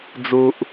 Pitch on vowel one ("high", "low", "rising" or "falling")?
low